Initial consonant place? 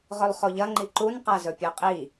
uvular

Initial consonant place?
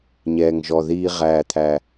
palatal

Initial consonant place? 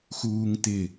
velar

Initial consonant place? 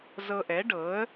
alveolar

